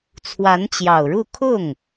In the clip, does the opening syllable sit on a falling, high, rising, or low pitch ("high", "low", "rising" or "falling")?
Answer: rising